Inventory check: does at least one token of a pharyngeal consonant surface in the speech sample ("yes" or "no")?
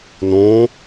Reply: no